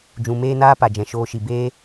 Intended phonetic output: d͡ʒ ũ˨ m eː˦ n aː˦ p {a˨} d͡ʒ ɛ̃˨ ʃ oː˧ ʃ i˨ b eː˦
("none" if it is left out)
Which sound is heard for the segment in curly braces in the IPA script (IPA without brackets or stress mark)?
a˨